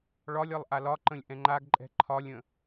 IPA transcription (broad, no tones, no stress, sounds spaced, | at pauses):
ɭ ɒ lʲ ɒ lˠ ʔ a l ɒ ǃ ə̃ lʲ ʔ ɛ̃ ŋ͡ǃ a ɡ ǃʼ ɛ̤ ǃʰ ɒ lʲ ə̃